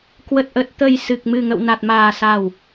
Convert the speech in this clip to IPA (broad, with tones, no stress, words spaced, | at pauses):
kwə˨˩t̚ʔə˨˩t̚ t̪ə˨˩j sɨ˨˩k̚mɨ˨˩ŋə̰˧˨w na˨˩t̚maː˨˩sa˨˩w